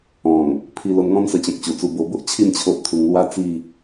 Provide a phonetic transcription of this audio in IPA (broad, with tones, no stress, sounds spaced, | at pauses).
ɔ̃˨˩ ŋ | pʰ i˧ l o˧ n ŋ ɔ̃˦ n s ə˧ t͡ɕ ɔ̃˨ k̚ t͡ɕ u˨˩ t͡s u˧ b o˧ b o˦ ʔ t͡ɕʰ i˥˧ n t͡ɕʰ o˦ ʔ t̪ʰ u˧ ŋ l w a˦ t͡s i˥˧